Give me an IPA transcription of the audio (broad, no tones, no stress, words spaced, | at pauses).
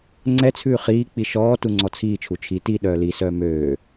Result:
ŋ͡ǀɛ t͡sʰʉːχiːk͡pi ʃɔː tuŋ͡ǀɔt͡sʰiːt͡ʃʰu t͡ʃʰi ti ɗœːlisœː møː